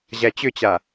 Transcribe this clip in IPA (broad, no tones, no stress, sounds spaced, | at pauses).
ʑ æ t͡ɕ ʏ t͡ɕ a